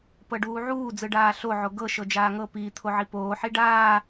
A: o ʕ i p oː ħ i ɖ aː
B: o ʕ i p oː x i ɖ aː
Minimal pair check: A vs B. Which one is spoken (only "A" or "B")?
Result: A